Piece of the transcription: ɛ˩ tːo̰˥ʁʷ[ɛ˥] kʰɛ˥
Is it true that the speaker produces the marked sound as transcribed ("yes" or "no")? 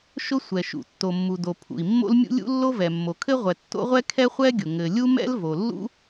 yes